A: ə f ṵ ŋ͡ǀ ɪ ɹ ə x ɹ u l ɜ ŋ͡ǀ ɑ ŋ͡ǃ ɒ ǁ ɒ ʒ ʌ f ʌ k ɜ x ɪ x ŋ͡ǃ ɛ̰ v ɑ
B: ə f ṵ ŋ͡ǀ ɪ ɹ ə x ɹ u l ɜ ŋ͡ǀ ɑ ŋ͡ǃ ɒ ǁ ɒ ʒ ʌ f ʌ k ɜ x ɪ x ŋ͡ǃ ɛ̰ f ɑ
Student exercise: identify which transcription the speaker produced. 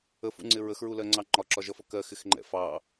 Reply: B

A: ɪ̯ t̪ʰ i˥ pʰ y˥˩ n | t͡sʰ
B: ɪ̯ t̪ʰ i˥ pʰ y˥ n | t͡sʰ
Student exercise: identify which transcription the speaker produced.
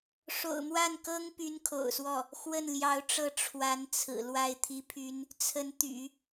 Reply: B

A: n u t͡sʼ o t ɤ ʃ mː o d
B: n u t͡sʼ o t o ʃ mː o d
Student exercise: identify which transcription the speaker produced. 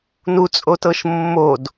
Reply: A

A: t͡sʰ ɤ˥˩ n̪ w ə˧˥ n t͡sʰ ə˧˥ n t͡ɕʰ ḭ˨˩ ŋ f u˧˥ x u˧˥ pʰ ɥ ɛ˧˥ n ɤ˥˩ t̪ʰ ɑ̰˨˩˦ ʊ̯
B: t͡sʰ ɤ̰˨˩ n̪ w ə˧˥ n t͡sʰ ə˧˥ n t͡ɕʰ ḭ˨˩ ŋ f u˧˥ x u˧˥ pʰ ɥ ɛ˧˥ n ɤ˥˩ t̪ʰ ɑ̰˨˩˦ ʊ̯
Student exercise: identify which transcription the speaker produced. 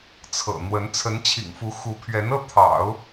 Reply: B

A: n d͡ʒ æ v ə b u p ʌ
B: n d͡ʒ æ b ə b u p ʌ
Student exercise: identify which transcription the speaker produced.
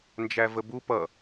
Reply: A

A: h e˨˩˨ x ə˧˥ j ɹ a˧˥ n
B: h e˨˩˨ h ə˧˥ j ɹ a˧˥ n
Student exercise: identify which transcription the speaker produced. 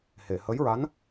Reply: B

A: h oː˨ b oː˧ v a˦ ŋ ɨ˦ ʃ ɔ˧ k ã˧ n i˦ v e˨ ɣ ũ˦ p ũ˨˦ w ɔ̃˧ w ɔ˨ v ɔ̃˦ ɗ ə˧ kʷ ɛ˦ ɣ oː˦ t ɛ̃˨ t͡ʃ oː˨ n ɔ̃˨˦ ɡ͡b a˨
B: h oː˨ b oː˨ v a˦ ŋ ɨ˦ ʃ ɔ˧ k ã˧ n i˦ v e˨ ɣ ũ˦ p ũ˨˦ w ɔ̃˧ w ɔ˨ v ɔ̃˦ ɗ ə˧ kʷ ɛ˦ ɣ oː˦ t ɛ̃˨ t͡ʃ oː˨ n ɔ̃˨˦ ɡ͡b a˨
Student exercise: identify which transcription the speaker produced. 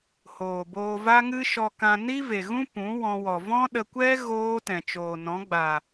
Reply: A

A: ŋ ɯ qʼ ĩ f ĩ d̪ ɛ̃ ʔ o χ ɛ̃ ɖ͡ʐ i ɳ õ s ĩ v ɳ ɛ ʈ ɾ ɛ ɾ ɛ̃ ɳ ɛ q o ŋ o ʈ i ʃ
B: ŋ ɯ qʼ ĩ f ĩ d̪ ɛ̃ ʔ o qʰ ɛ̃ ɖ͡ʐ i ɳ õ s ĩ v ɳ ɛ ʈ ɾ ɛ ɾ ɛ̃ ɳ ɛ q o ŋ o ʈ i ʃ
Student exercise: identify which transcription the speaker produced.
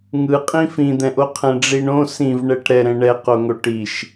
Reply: B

